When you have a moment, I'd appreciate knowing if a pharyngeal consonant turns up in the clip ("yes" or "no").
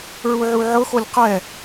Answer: yes